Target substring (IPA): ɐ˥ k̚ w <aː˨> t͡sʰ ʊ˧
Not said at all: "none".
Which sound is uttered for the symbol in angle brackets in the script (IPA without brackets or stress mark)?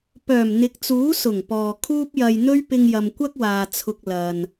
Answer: aː˨